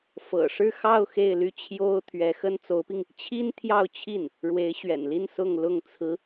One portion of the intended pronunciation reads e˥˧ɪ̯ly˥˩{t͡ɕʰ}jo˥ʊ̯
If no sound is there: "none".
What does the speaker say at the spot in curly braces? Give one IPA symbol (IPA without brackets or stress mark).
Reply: t͡ɕʰ